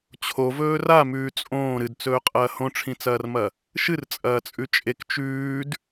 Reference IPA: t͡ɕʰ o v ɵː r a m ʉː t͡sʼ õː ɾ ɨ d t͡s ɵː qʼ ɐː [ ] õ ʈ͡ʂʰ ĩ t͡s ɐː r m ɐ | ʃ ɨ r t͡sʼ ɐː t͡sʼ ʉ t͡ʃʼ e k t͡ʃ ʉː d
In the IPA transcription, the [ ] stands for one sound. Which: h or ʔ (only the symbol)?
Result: h